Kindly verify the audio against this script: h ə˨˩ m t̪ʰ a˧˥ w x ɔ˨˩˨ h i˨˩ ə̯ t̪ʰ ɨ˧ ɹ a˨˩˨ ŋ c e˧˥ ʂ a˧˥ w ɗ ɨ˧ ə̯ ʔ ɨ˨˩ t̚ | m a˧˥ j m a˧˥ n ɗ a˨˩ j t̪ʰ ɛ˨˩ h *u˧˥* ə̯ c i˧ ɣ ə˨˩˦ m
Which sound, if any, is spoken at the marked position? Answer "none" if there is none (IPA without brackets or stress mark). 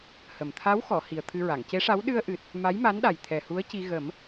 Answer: u˧˥